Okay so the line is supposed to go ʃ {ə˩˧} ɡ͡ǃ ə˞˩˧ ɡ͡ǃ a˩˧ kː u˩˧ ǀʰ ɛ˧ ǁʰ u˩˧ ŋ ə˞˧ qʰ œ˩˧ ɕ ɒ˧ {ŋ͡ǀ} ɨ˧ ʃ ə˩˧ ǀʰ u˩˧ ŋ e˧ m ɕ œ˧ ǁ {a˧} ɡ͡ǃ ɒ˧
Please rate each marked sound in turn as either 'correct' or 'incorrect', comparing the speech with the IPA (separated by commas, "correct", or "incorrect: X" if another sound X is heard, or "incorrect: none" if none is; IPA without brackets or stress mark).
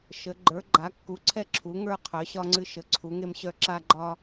correct, correct, correct